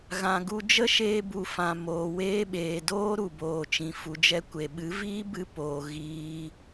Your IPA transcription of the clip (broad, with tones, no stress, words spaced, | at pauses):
ɣã˨ɡu˧ d͡ʒə˦ʃeː˧bu˨ fã˨moː˨weː˧ɓeː˨ doː˦ɾu˨ boː˨t͡ʃĩ˨ fu˨d͡ʒɛ˧ kʷe˨ɓɨ˨˦ viː˦bɨ˧ poː˨ ɣiː˧